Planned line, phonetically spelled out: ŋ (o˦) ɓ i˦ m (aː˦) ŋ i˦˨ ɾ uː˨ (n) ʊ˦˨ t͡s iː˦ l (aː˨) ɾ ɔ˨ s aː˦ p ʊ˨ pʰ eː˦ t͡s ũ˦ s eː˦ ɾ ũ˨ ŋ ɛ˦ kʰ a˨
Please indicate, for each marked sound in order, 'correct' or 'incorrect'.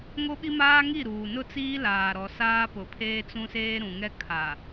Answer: correct, correct, correct, correct

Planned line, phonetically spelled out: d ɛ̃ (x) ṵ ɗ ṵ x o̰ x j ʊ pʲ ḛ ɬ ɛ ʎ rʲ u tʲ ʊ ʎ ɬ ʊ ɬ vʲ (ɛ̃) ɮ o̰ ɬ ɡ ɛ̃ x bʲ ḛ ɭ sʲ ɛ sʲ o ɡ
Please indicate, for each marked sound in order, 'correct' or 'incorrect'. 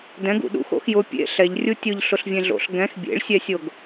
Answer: incorrect, incorrect

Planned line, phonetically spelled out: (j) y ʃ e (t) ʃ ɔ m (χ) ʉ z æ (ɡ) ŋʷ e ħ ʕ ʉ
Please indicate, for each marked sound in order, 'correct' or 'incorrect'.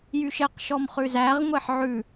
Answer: correct, incorrect, correct, incorrect

